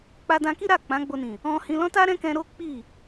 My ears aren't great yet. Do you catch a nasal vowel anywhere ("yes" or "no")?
yes